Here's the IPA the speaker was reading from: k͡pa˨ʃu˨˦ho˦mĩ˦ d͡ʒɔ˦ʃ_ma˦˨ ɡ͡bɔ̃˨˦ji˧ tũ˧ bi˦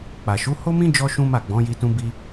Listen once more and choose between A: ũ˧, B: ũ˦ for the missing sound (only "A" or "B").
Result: B